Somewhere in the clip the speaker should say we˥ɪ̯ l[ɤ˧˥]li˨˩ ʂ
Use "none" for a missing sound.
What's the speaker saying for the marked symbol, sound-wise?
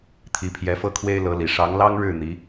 ɤ˧˥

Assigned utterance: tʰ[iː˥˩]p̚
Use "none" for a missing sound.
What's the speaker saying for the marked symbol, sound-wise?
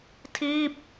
iː˥˩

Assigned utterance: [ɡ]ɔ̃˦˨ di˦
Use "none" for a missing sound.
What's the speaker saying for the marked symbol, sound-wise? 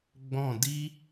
ɡ͡b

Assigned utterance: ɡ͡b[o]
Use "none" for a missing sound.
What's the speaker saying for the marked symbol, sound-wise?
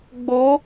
o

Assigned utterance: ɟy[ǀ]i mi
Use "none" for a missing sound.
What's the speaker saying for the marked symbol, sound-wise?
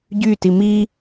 t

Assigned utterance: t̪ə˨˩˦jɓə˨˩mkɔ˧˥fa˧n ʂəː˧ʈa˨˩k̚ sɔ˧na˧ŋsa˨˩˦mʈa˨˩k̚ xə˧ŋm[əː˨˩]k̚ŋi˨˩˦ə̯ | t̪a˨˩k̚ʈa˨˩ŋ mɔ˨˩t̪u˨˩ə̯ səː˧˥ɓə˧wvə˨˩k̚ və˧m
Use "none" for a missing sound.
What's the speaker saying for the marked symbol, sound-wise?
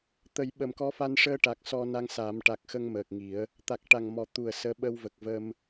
əː˨˩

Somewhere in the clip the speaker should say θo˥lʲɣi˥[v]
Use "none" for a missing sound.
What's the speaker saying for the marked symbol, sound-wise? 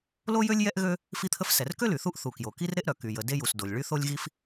f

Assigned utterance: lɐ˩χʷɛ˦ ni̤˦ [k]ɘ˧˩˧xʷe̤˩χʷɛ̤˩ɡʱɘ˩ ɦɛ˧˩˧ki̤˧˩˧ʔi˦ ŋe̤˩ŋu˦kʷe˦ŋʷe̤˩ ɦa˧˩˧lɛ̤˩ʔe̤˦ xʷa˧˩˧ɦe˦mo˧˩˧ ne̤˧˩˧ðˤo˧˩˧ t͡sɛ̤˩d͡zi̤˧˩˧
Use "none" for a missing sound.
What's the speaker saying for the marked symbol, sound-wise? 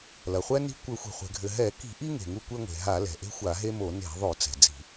kʷ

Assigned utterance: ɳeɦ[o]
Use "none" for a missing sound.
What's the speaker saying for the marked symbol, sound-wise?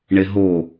o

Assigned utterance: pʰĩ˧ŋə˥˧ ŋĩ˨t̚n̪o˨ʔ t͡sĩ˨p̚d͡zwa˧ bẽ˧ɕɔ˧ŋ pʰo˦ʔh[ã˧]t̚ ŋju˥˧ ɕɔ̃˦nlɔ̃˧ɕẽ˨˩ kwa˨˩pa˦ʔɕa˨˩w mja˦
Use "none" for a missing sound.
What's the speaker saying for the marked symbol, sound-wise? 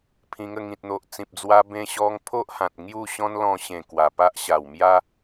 ã˨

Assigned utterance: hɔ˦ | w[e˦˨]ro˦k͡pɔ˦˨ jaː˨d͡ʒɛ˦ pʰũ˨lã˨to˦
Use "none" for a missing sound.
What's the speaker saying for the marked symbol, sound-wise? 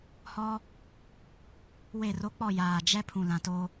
e˦˨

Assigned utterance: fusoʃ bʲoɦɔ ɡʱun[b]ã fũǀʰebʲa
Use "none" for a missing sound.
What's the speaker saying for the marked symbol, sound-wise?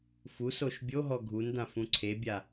d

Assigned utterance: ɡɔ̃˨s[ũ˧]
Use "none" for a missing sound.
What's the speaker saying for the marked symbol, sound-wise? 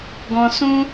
ũ˧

